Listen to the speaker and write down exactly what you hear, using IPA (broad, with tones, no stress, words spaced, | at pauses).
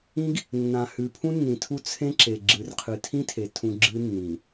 ĩ˦ɡ | nːã˨hʉ˨ pʰũ˦nːĩ˨tʰu˦ t͡sʰẽ˦ǁe˨ ɡ͡ǁɨ˨rqʰɨ˨tʰĩ˦tʰe˨ tʰũ˨ ɡ͡ǁɨ˦nːĩ˨